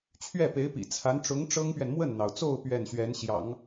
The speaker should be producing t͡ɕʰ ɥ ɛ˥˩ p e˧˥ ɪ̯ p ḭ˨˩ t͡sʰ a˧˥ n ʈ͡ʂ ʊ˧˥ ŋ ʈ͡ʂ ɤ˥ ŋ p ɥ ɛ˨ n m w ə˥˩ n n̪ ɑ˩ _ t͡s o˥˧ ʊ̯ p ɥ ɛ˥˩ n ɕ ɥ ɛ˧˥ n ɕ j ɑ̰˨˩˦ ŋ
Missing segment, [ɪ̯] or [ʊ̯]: ʊ̯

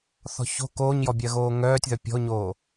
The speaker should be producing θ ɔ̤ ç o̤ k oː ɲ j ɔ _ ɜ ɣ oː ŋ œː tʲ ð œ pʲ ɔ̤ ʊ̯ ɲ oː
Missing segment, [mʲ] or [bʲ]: bʲ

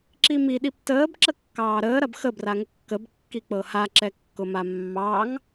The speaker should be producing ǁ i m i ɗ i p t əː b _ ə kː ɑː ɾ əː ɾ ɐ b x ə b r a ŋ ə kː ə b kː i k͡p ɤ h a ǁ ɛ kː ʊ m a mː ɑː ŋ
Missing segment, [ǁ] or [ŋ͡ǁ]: ǁ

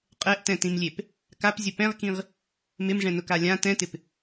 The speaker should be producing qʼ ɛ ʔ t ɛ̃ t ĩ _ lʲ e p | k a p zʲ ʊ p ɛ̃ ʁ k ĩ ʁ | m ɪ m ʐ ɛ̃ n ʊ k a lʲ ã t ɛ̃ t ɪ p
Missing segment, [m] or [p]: m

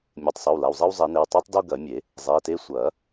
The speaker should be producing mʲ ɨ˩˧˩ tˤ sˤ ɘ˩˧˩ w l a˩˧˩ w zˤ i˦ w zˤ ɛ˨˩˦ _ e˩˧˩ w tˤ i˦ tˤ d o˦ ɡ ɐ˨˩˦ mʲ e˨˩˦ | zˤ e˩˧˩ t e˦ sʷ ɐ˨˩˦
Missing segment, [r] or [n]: n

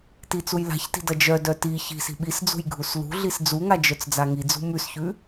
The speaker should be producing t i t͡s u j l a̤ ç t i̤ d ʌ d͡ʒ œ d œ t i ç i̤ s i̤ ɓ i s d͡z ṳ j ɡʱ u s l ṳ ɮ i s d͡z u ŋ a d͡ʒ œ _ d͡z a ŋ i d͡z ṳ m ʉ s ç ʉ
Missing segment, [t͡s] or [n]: t͡s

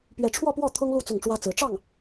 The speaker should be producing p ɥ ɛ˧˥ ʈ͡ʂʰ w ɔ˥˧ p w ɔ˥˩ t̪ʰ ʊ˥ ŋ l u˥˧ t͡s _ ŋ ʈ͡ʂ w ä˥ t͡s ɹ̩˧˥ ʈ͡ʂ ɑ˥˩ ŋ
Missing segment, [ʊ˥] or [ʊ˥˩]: ʊ˥˩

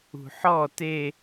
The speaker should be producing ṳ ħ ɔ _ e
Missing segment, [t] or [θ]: t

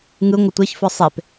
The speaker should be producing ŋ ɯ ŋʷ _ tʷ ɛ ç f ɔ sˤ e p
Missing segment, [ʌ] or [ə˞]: ʌ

